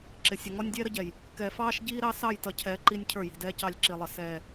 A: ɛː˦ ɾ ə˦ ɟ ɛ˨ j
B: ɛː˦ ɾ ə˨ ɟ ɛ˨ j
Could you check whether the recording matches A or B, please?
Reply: A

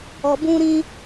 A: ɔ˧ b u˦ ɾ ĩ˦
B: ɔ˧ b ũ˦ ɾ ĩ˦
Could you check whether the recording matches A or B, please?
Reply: B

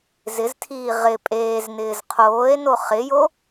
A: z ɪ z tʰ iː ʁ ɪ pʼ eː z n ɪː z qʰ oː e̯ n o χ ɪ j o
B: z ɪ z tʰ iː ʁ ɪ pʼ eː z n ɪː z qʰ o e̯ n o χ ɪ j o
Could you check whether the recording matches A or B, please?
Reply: A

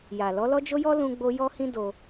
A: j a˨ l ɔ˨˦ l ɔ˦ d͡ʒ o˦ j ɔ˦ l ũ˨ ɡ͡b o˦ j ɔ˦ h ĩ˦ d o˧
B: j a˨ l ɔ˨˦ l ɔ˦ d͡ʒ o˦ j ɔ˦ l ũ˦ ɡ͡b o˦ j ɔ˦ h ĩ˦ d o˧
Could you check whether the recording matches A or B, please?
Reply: B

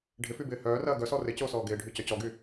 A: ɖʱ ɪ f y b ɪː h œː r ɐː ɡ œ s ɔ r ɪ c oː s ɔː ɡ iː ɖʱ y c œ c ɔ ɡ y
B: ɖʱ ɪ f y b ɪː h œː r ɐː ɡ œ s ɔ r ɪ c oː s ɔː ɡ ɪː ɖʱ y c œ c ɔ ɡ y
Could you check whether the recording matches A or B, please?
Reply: B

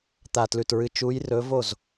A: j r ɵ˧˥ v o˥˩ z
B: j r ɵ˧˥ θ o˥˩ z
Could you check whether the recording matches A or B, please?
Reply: A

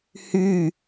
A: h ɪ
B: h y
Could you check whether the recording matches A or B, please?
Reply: B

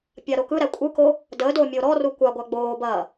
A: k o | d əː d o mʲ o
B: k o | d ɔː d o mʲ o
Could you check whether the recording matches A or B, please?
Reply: A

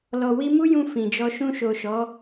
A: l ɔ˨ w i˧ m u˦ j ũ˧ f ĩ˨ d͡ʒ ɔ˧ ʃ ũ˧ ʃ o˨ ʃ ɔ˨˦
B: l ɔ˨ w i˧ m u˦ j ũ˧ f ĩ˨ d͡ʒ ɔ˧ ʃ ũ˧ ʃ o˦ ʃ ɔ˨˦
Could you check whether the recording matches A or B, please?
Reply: A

